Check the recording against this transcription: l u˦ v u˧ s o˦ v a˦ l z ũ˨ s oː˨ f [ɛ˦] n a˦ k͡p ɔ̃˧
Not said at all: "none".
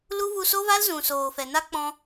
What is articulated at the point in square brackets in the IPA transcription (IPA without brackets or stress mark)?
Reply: ɛ˨